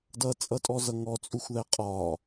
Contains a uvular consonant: yes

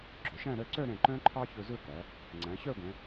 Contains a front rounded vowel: yes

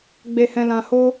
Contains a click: no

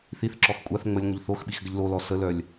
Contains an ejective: yes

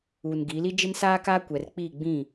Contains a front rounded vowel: no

